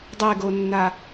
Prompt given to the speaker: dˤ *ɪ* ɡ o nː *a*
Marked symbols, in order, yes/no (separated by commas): no, yes